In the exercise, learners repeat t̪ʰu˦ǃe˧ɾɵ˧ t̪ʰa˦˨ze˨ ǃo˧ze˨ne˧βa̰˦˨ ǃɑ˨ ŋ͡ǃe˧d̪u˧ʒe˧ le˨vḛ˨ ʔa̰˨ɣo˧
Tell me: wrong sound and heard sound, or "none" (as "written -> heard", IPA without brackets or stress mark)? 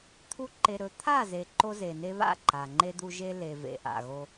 ɑ˨ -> a˨